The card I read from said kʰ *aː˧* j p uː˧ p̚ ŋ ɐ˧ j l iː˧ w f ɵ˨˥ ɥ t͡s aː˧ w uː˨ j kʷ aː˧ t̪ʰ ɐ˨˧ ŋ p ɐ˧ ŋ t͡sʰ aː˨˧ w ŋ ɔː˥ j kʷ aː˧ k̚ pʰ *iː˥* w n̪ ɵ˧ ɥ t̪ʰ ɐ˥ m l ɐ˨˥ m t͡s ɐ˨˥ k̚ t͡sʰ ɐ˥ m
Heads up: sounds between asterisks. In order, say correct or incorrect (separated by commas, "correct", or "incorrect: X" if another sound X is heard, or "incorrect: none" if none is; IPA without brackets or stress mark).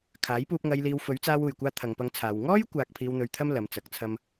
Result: incorrect: aː˨˥, incorrect: iː˧